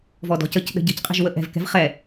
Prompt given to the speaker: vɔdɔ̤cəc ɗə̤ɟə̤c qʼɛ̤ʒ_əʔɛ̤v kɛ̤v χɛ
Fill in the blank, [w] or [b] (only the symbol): w